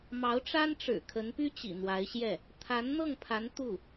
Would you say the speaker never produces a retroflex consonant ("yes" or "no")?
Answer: no